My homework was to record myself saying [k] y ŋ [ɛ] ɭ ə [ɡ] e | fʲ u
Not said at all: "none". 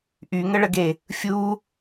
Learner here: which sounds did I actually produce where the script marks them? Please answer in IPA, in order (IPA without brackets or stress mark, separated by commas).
ʔ, ə, ɡ